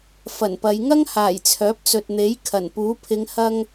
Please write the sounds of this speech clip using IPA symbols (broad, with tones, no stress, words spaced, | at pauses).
fɐ˨˩npɐ˨˧j ŋɐ˥ŋhaː˨˩j t͡sʰœː˨˥p̚t͡sɵ˨t̚n̪e˨˥j kʰɐ˨˩npuː˨˥ pʰɪ˨˧ŋ hɐ˧ŋ